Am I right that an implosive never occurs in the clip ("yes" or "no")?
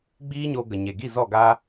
yes